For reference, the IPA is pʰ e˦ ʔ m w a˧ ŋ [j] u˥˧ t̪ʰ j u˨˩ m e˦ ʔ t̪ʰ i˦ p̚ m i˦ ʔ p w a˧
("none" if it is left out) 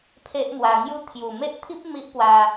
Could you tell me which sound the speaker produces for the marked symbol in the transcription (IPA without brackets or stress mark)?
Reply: j